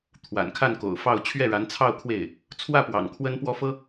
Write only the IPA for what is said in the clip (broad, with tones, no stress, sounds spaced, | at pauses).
t̪ʰ w a̰˨˩ n kʰ a˥˩ n k o̰˨˩ ʊ̯ f ɑ˥˧ ʊ̯ t͡ɕʰ ɥ ɛ˥˩ ɻ a˧˥ n t͡sʰ ɑ˥˧ ʊ̯ kʰ w e˥˩ ɪ̯ | t͡sʰ w ä˥˩ p w ɑ̰˨˩ ŋ kʰ w ə˥ n p w ɔ˥ f ɤ˥